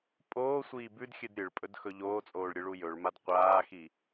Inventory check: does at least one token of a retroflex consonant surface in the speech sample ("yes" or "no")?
yes